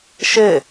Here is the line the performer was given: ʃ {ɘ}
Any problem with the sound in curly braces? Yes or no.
no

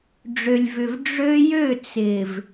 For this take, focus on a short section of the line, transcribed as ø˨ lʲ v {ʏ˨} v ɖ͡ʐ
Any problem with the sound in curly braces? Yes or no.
no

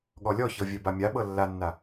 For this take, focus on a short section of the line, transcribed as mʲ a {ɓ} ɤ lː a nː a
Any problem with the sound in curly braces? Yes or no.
no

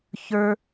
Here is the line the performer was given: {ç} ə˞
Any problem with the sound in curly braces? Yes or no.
no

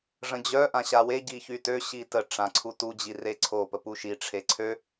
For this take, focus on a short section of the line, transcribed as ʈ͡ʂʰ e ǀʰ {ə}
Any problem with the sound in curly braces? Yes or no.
yes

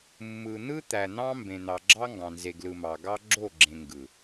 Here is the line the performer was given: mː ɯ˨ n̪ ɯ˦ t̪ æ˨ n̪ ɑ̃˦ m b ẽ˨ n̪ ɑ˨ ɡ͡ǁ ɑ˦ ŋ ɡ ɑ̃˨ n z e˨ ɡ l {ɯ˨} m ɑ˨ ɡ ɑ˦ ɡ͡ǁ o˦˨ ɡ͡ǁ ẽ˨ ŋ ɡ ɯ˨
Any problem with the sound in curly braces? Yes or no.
no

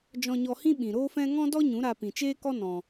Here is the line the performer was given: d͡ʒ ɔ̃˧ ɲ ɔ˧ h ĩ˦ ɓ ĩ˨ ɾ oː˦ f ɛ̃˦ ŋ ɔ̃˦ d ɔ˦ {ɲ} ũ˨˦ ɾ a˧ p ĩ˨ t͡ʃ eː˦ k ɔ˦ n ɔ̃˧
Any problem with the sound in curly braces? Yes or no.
no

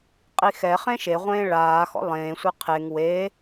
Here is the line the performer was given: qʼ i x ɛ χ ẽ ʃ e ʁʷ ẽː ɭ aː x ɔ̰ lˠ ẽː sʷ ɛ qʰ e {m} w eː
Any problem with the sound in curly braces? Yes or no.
yes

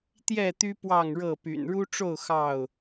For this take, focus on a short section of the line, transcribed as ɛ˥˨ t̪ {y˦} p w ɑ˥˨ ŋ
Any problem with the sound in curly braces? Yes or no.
no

